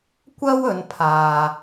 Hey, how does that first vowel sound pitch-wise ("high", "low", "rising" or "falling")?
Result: high